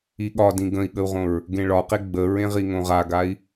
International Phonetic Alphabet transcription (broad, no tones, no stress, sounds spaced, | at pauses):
i ɠ ɒ d ĩ ɡ ə̃ i̯ ɠ ə u̯ ʁ õ ɹ | ɡ ẽ ɭ ɒ q e ɡ͡b ə ɹ ẽ ʁ i ŋ õ ʁ a ɡ a i̯